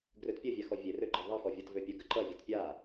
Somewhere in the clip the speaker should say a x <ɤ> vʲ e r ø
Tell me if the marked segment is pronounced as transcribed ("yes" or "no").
no